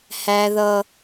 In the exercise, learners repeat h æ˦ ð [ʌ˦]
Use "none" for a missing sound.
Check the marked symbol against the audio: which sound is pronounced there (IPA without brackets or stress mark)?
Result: ʌ˦